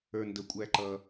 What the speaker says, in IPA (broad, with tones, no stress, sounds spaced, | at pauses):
ə˞˩ n d ə˩ kʷʼ æ˩ ǃ ʌ˩